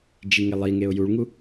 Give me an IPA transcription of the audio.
d͡ʒ i ŋ e lˠ i ŋ e ʊ̯ j u ɭ ŋ u

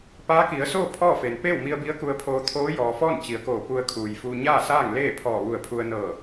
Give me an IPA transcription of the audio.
p aː˧˥ k i˩˧ ə̯ s oː˥˨ pʰ ɔː˥˨ f e˩ n p eː˥˨ w m i˧ ə̯ b i˧˥ ə̯ k u˧ ə̯ pʰ oː˧ t̪ʰ oː˧˥ j ɔː˩ f ɔː˥˨ n t͡ɕ i˩˧ ə̯ k oː˧˩ p u˧ ə̯ kʰ uː˩ j f uː˧ ɲ aː˥˨ s aː˥˨ ŋ l eː˥˨ pʰ ɔː˧˩ ʋ u˧˩ ə̯ pʰ u˧ ə̯ n ɤː˧˩

